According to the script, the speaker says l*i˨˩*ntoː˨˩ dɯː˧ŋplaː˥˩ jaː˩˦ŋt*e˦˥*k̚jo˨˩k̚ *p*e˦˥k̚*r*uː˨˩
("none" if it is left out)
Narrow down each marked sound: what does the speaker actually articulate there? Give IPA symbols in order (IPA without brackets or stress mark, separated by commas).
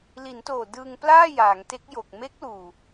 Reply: i˩˦, e˦˥, m, l